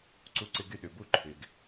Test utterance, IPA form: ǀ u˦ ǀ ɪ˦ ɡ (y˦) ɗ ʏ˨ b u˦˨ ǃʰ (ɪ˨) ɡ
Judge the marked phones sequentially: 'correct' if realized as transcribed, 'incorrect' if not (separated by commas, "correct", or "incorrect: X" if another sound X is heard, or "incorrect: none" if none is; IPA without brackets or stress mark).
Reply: correct, correct